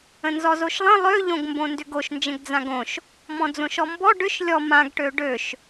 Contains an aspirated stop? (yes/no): no